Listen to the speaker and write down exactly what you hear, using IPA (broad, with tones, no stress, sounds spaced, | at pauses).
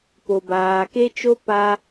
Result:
p o˨ b aː˨ k e˦ t͡ʃ o˦ p a˦